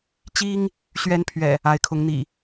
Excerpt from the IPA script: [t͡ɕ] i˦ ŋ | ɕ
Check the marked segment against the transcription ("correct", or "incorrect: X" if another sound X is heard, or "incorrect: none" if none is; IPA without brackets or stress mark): correct